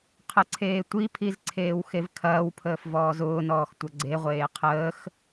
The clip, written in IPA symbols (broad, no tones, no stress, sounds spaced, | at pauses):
qʰ ə ǀʰ eː tʷ i pʰ i z ǀʰ eː w x e v kʰ ɐː w pʰ əː f v ɔː z ʊː n ɔː x tʷ ɐ ɡ͡ǀ e ʁʷ eː qʰ əː x